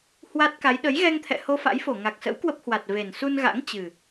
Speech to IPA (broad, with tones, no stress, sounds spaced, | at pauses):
h w a˦˥ t̚ k a˨˦ j ɗ ə˨˦ j ɣ ɛ˧ ŋ t̪ʰ ɛ̰˧˨ h o˧ f a̰˧˥ j f o˧˩ ŋ a˨˩ k̚ s ə̰˧˥ w k w ə˦˥ p̚ h w a˨˩ t̚ v e˨˩ n s u˧ n ɣ a̰˧˥ ŋ t͡ɕ ɨ˨˩